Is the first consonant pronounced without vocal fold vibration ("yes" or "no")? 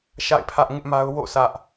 yes